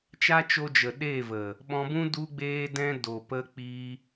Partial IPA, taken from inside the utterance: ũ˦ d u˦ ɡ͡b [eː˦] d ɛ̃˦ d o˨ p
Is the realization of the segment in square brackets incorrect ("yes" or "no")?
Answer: no